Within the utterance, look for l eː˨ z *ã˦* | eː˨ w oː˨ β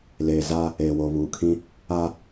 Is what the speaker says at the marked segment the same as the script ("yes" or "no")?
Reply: no